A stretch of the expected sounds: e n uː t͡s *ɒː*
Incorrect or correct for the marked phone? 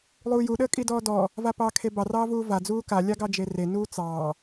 incorrect: ɑː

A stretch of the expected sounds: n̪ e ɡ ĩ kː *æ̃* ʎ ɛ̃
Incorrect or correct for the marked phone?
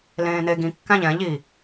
correct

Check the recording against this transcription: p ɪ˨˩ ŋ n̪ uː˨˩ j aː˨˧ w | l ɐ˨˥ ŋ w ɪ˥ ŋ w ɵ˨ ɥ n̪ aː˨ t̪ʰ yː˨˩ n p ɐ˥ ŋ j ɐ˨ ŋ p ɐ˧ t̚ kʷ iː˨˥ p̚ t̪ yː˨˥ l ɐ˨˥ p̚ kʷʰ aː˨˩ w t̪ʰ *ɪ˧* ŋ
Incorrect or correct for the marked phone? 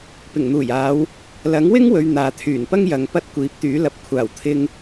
correct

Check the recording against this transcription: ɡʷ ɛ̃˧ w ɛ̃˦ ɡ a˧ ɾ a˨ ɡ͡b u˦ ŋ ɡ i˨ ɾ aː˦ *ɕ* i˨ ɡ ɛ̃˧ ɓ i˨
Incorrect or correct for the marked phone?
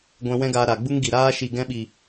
incorrect: ʃ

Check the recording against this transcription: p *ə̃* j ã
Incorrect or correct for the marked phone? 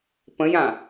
correct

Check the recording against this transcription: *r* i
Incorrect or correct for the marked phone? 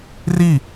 correct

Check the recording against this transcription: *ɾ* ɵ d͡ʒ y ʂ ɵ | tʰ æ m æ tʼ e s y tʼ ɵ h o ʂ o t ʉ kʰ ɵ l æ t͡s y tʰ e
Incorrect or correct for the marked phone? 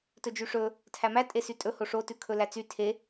incorrect: t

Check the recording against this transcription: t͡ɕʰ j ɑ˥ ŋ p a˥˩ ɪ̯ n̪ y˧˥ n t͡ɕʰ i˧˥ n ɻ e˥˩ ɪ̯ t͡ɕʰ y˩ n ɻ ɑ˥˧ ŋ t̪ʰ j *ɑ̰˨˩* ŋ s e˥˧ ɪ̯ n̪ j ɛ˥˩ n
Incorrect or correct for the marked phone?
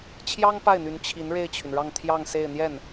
incorrect: ɑ˥˧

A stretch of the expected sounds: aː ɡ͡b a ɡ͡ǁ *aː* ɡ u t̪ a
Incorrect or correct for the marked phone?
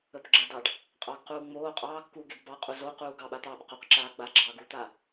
incorrect: ɑː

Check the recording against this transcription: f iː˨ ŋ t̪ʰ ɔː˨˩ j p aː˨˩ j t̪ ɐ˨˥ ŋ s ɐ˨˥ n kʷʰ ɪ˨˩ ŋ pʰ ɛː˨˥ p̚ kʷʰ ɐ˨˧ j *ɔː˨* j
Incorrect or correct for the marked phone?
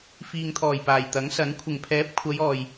correct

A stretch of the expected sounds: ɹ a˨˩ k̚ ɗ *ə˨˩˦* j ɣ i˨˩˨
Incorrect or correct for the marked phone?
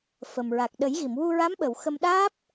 correct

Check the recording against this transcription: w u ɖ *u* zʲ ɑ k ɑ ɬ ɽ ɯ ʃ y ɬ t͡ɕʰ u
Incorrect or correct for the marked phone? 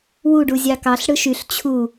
correct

